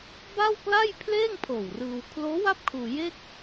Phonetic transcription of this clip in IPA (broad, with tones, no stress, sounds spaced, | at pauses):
b a˥˩ w k l a˥˩ j pʰ l eː˥˩ ŋ pʰ oː˨˩ w r ɯː˧ w kʰ l oː˦˥ w a˥˩ p̚ kʰ uː˧ j e˥˩ k̚